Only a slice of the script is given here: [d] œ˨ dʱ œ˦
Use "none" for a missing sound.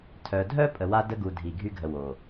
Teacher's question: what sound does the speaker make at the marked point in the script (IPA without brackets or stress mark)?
tʰ